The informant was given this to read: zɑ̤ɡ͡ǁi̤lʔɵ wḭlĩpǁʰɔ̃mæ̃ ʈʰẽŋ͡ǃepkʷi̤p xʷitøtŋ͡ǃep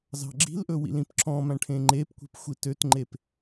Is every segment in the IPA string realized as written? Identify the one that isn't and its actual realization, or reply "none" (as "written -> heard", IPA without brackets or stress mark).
none